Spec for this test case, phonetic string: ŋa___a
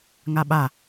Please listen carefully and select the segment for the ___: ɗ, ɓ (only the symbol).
ɓ